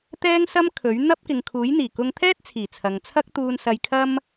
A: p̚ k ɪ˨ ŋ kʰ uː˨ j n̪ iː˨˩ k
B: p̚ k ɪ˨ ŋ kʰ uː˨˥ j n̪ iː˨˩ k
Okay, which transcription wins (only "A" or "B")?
B